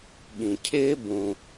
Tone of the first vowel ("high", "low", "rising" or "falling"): low